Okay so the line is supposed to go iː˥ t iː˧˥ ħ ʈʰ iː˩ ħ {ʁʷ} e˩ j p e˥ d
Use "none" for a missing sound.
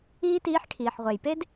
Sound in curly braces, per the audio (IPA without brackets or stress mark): ʁʷ